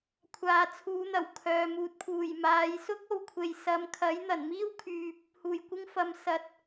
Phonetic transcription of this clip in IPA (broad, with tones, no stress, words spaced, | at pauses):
kʷʰaː˨t͡sʰuː˨˧n̪ɐ˨˩w kʰœː˨ muː˨t̚pʰuː˨˩j maː˨˧jsʊ˥k̚ o˨wkʷʰe˨j sɐ˨˧m kʰɐ˨˥j n̪ɐ˨˩nmiː˥wkʰyː˨p̚ | huː˨˩jkʷɪ˧ŋfɐ˨m sɐ˨˥t̚